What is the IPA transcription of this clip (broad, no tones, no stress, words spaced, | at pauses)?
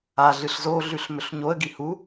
a ɮɨɬzoɮʉɬ mɵɬɲoə̯ɡi hu